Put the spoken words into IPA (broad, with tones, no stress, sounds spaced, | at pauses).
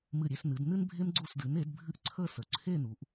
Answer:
m ɨ˧˩ ɾʲ e˧ s n ɨ˩˧ d n ɨ˥ n bʱ e˥ m ɡ͡ǀ u˧˩ s d ɨ˩˧ n e˩˧ d bʱ ɨ˧ ʔ ǀʰ ə˥˧ s ə˩˧ ǀʰ e˥˧ n u˩˧ ʔ